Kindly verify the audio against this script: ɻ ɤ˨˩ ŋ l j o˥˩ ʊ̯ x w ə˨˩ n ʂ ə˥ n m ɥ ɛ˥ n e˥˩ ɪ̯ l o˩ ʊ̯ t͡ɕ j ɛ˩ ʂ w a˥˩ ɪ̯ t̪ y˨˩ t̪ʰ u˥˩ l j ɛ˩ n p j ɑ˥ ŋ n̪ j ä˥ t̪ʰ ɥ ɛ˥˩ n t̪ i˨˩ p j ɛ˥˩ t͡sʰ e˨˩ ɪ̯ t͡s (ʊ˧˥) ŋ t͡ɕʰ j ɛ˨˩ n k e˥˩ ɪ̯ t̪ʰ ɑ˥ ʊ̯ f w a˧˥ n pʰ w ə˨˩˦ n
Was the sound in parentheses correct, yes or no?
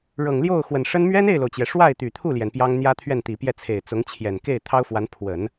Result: yes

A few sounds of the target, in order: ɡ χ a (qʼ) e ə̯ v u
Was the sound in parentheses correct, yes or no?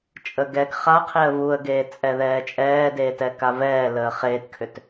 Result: no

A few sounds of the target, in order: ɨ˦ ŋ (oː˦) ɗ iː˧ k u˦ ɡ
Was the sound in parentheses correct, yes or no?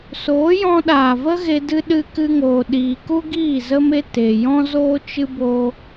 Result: no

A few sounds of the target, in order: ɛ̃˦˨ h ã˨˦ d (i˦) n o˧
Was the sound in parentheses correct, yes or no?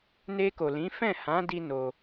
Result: yes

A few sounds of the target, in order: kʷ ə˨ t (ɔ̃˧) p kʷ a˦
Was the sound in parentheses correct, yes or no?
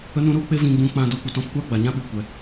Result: yes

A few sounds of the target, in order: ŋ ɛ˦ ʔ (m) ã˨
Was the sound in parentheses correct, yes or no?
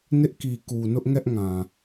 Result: no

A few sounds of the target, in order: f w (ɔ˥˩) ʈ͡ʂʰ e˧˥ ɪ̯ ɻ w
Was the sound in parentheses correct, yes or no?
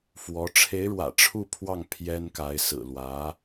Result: no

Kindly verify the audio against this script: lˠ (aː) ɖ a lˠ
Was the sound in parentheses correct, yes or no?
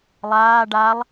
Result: yes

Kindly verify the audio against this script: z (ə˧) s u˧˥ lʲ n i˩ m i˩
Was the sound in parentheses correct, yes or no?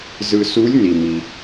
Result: no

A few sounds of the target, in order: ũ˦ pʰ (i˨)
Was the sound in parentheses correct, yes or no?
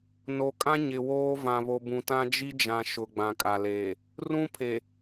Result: no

